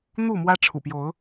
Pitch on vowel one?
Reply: falling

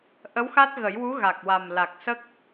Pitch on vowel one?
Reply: rising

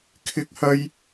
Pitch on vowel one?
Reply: high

